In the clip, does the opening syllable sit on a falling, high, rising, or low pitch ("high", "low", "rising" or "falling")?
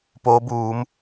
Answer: rising